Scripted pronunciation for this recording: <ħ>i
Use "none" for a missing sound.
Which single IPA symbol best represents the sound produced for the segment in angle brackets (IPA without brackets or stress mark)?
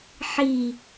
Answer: ħ